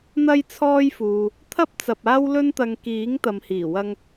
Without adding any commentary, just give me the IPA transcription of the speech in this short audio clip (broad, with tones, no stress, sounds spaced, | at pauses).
n̪ ɐ˧ j t͡sʰ ɔː˧ j f uː˨ | t̪ʰ ɐ˥ p̚ t͡s ɐ˧ p̚ aː˥ w l ɵ˥ n t̪ ɐ˧ ŋ k iː˨˥ ŋ t̪ ɐ˨ m h iː˨˩ w ɐ˧ ŋ